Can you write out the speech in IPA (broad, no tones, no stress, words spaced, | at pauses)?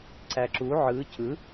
ǀæǁu ʕɯ cɯ